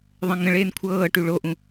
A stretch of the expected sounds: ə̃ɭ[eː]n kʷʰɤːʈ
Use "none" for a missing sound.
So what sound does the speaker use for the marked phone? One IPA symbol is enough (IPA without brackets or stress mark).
eː